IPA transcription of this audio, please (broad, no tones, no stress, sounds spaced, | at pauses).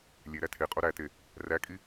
lʲ e ɾ æ tʰ e qʼ o ɾ æ t e | r æ kʼ i